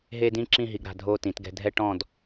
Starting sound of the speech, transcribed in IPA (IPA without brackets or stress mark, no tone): ɦ